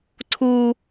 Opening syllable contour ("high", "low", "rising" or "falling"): high